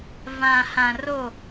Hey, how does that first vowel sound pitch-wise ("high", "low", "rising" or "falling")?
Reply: low